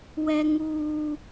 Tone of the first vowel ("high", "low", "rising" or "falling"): high